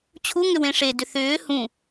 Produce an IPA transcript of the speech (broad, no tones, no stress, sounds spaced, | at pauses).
t͡ɕʰ u ŋ ʏ w ẽ ʂ e d ʏ θ ʏː h ũ